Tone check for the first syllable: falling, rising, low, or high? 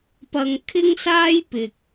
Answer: low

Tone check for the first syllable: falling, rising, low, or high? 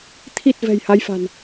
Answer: low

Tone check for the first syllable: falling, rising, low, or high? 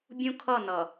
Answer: high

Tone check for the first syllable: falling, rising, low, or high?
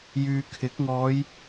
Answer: low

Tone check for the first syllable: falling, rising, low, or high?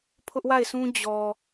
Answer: high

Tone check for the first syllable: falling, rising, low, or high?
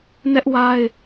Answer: high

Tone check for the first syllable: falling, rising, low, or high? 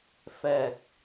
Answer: low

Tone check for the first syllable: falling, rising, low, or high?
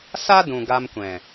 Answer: high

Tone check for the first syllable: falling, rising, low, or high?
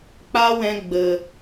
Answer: high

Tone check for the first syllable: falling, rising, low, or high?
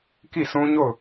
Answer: falling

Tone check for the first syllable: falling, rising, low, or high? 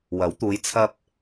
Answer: rising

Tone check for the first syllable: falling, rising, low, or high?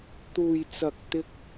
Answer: low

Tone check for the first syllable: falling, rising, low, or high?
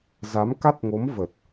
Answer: rising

